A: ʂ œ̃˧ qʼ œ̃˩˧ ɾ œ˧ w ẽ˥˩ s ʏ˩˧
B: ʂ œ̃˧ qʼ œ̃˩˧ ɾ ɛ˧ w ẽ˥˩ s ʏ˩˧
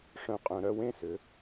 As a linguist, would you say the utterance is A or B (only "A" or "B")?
A